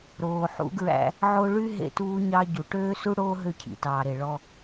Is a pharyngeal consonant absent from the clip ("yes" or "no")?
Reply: no